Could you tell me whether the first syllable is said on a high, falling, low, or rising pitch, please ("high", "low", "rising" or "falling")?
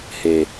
low